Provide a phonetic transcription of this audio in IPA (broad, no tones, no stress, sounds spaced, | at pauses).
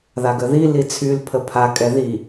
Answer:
ð a ɡ ə ð i l i t͡sʰ y l pʰ ə pʰ a kʼ ɛ ð i